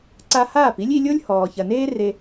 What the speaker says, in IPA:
ǀ a˧ h aː˦˨ p i˦ lʲ i˧ lʲ o˦ lʲ h ɔː˨ ç ɐ˨ n eː˦ r e˧

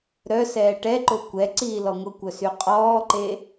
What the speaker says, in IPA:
ɾ œ s ɛː ʈ ɛ ǃ o kʷ ɛ ǀ iː l ɔ ŋʷ ə kʷ œ s y qʼ ɔː ǃ e

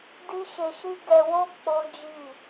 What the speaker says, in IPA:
d i˦ ʃ e˧ ʃ i˦ ɡ ɛ˧ w o˦ k͡p o˦ d͡ʒ i˦˨

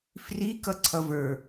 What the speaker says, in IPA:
f r i k ʌ ǀʰ ʌ v ə˞

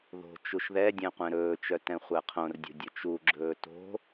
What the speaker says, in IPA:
ð o̤ t͡ʃ u ʃ ð ɛ dʲ ɛ̃ qʷ ɛ̃ ɾ ɵː t͡ʃ œ t ɛ̃ χʷ æ qʰ õ r dʲ o̤ dʲ ɵ t͡ʃ u ɡ͡ǁ ɵː t o̤

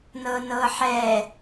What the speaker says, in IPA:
n ɤ n ɤ ħ ɛ

